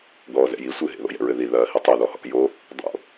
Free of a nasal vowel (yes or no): yes